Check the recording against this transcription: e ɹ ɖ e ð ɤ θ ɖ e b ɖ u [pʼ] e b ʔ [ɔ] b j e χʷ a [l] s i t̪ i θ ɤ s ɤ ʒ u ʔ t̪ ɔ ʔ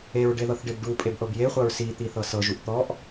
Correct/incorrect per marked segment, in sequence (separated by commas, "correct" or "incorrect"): correct, incorrect, incorrect